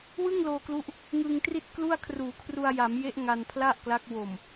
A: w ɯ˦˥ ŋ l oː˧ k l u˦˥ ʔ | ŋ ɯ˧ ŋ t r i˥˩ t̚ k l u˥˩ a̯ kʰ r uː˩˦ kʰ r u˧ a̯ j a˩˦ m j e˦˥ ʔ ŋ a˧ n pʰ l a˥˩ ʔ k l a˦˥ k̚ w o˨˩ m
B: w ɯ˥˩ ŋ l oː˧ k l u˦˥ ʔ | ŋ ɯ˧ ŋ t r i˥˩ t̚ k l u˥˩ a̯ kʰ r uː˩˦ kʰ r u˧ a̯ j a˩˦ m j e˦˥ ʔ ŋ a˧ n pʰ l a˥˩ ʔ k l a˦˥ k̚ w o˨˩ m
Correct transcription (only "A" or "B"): B